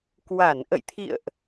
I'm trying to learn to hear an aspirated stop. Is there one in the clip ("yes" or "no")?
yes